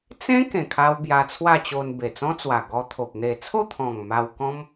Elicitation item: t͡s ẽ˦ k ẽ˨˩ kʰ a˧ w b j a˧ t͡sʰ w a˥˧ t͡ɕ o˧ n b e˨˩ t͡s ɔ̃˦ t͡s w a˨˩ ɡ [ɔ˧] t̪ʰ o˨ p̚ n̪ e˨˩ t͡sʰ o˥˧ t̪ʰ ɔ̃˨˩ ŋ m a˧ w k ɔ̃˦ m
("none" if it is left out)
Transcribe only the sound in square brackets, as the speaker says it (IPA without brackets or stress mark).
ɔ˧